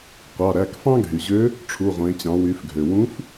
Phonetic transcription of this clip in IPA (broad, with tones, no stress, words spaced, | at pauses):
qʷɑ˩˧˩ ɾæ˩˧˩kfɑ̃˥ɡʱy˩ʑø˧˥ | ʈ͡ʂʰu˩˧˩ʁʷẽ˩˧ t͡ɕɑ̃˩˧wy˩˧fɡʱø˩ wũ˧˥f